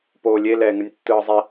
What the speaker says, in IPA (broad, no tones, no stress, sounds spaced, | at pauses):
p oː lʲ e l ɛː ŋ ɯ nʲ tː ɯː zˤ e